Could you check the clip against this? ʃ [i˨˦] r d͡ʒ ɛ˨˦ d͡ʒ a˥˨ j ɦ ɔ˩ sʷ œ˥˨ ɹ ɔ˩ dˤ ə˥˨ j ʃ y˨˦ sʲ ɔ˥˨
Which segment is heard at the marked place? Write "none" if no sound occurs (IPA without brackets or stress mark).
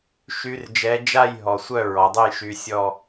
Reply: y˨˦